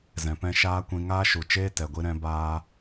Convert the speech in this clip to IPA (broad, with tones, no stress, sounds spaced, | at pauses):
z ɛ̃˨ p ɛ̃˧ ʃ aː˦ kʷ ĩ˧ ŋ aː˦ ʃ u˨ t͡ʃ eː˦ t ɛ˨ ɡʷ i˧ ɾ ɛ̃˧ b aː˧